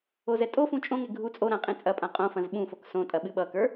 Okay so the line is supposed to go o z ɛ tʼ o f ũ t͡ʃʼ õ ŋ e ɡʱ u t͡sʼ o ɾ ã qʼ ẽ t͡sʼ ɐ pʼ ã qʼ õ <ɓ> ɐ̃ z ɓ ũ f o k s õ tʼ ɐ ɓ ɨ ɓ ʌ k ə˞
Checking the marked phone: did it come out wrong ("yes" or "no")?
yes